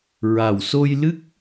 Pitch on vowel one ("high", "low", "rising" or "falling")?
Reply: low